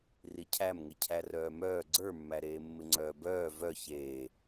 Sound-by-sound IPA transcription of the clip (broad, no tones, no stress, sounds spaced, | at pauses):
r i cʰ æ m ŋ ɪ cʰ æ r œː m œː ɡ͡ǀ ə˞ mː æ ɾ eː mː ɪ ŋ͡ǀ œː b œː v œ ç eː